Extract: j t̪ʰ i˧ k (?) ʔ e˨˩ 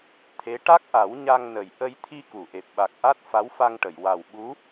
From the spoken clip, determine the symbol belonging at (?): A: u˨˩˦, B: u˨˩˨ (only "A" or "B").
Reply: B